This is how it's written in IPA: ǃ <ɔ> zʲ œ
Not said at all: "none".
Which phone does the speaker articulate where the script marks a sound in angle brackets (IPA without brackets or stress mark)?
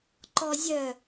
ɔ